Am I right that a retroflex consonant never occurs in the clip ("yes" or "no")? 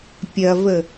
yes